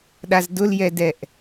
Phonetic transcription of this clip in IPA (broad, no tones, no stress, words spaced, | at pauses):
ɗazdʊljɛdɛʔ